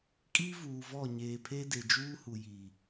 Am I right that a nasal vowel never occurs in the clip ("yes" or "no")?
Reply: yes